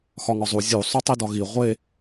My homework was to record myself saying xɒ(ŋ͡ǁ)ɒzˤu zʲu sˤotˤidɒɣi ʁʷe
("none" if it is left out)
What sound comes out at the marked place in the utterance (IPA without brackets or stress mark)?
ŋ